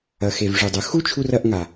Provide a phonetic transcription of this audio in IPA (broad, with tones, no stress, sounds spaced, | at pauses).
ɐ˨ x e˨ v ʐ ʉ˨ dˤ ɵ˨ x u˦ t͡ʃʰ u˧ r ɐ˧ ʔ ŋ a˨